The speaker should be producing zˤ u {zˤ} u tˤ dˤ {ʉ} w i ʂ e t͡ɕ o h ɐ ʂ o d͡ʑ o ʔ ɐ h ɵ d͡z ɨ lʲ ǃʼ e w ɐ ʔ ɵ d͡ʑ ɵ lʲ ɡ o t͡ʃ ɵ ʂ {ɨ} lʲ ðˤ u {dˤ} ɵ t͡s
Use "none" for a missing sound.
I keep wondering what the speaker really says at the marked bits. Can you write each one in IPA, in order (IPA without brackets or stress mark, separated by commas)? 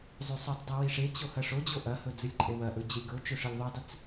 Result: sˤ, ʉ, ɨ, dˤ